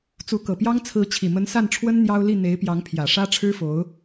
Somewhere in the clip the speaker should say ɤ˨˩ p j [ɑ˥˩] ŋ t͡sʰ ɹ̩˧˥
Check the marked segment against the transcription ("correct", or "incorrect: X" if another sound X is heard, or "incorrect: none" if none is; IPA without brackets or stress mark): incorrect: ɑ˥